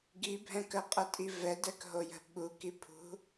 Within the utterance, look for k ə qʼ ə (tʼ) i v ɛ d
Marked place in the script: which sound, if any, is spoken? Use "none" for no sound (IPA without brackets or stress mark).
tʼ